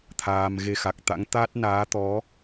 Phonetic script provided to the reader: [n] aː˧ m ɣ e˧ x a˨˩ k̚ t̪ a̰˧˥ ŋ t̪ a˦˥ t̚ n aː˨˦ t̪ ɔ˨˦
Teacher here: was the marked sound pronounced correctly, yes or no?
no